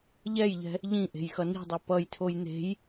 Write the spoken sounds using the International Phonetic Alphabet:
ʎ ɛ j ʎ ɛ̤ | ʎ ĩ ʔ e̤ j x ʌ n i̤ dˤ i p ʌ j tʰ o j n̪ e̤ j

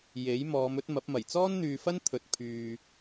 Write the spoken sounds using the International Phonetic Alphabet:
j e˨˥ j m ɔː˨˧ m ɵ˥ t̚ m ɐ˨˥ p̚ m ɐ˨˩ j t͡s ɔː˥ n n̪ yː˨ f ɐ˥ n t̪ʰ ɵ˨ t̚ pʰ yː˨

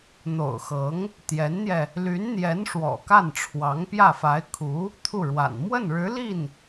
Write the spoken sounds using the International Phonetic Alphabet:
n̪ o̰˨˩ ʊ̯ x ɤ˧˥ ŋ | t̪ j ɛ˧˥ n n̪ j ɛ˧ | l y˧˥ n n̪ j ɛ˧˥ n ʂ w ɔ̰˨˩ k a˥˩ n ʈ͡ʂʰ w ɑ˧˥ ŋ p j ä˥˩ f a˧˥ ɪ̯ kʰ u˧˥ | t̪ʰ u˥˩ ɻ w a̰˨˩ n m w ə˥˩ n ɻ ɻ̩˧˥ l i˥˩ n

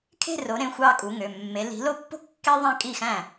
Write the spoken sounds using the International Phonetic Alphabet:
kʰ e̤˥˧ r o˨˦ ɾ ẽ˩˧˩ xʷ ɑ˥˧ kʼ u˨˦ ŋ ø˩˧˩ mː e˨˦ l i̤˨˦ l o˥˧ pː o̤˥ kː e˥ ðˤ æ̃˥˧ kʼ i˥˩ x æ̃˥˩

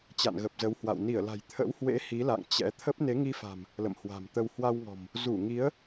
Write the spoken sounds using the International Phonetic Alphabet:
t͡ɕ a̰˧˨ n ɣ ə˨˩ p̚ z ə˨˦ w h w a̰˧˨ w n i˧˩ ə̯ l a̤˨˩ j t̪ʰ ə̰˧˥ w h w ḛ˧˥ h i˨˦ l a̰˧˨ ŋ t͡ɕ ɛ̰˧˥ t̪ʰ ə˦˥ p̚ n e˨˦ ŋ i˧ f a̤˨˩ m | l ə̰˧˨ m h w a̤˨˩ m t̪ ə˧ w h w a˧ w ŋ ɔ̤˨˩ m | z u˧˩ ŋ i˨˦ ə̯

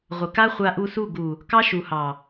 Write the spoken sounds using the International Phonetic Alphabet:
ʁʷ ə˨ k a˦ χʷ a˧ ʔ u˧ s u˦˨ ɡ u˨ | k ɑ˦ ʃ u˨ h ɑ˨

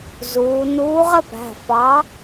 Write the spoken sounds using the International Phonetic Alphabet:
z uː˩˧ n uː˨˥ ʁ ə˥˧ p æ̤˩˧˩ f ɑ˨˥

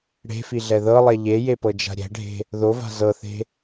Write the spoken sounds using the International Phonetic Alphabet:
ɽ e̤ f i ɮ ɛ ð ɤ lˠ ɛ ʎ e j e p ɤ d͡ʒ a̤ ɾʲ ɛ̤ ɖʱ e̤ | ð o v a̤ z ɤ θ e̤

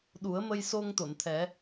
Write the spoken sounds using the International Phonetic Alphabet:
ɗ u˨˩˦ ə̯ m ə˧ j s o˧ ŋ t̪ o˨˩˨ n t̪ʰ ɛ˨˩˦

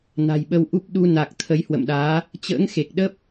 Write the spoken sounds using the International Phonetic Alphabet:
n a̤˨˩ j ɓ ə˧ w ʔ u˦˥ p̚ ɗ u˧ n a˨˩ k̚ t̪ʰ ə˨˦ j h w ə̰˧˨ m ɗ aː˨˦ | t͡ɕ ə̰ː˧˥ ŋ x e˨˩ k̚ ɗ ə˦˥ p̚

